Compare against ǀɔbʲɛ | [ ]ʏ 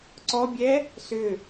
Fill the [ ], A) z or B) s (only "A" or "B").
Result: B